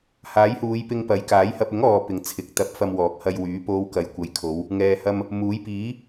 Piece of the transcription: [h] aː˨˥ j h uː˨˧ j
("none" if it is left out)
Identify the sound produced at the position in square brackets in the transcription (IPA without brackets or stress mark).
h